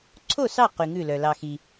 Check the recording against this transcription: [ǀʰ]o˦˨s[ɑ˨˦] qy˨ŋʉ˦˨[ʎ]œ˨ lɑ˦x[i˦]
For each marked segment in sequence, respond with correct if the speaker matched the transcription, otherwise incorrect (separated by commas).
correct, incorrect, incorrect, correct